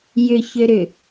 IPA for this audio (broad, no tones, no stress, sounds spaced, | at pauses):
j ʏ ç ø ɾ ʏ